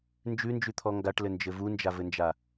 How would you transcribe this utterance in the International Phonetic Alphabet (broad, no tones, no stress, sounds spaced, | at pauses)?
n d͡ʒ ʉ n d͡ʒ ʉ t̪ʰ ɔ ŋ ɡ a ʈ l ɘ n d͡ʒ ɘ v u n d͡ʒ a v ɘ n d͡ʒ a